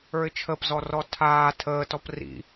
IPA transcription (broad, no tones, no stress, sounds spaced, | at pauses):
ə˞ ɪ̯ t͡ʃʰ ə p z ɔ r ɔ tʰ aː tʰ əː t ɔ p r ḭ